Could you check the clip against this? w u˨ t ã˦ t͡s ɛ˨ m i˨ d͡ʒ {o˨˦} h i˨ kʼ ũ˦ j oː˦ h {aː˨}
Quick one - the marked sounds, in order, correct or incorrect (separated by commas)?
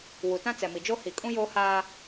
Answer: incorrect, incorrect